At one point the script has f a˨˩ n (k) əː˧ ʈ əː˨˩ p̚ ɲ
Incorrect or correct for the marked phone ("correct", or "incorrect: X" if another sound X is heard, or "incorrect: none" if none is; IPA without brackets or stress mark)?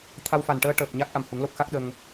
incorrect: ʈ